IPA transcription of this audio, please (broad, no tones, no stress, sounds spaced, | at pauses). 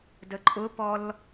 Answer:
d ə ǃʼ ʊ p ɔ l